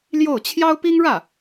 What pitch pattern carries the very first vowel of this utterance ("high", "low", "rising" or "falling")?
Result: falling